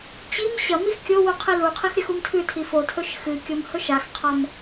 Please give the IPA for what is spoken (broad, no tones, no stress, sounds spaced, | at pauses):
t͡ɕ i m ɕ ɐ m i x kʲ o w u qʰ e l u qʰ i x ɾʲ ɐ x u m tʰ ʉ tʰ i f o tʰ ɵ ʃ x ɨ kʲ o m h ɵ ʃ a x qʰ a m